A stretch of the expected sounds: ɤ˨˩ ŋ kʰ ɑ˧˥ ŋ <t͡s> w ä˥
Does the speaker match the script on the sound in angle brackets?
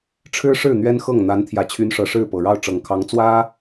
yes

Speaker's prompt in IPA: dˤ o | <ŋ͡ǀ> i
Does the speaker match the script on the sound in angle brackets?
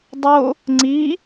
yes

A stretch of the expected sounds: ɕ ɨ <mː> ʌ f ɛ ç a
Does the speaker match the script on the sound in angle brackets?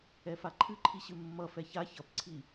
yes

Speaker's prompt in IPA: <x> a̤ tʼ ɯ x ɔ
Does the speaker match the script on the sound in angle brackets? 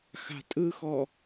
yes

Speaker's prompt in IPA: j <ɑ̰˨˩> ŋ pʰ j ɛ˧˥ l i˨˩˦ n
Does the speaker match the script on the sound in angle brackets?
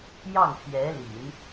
no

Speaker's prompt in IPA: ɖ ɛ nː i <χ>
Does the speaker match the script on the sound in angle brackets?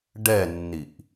no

